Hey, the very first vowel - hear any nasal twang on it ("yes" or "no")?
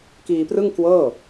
no